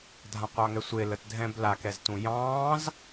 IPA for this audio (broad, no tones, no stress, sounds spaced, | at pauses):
dʱ ã qʷ ɑ ŋ ɛ sʷ e l ə t dʱ ɛ̃ b l a k ɛ z t ũ j ɑ̃ː z